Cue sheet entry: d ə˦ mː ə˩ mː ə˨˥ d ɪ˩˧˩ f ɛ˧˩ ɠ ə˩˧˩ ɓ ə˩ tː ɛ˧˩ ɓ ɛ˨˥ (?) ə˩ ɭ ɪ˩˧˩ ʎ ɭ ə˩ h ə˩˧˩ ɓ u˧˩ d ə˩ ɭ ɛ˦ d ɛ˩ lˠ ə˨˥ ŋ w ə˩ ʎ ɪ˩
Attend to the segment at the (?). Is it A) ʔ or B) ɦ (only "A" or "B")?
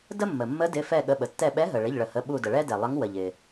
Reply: B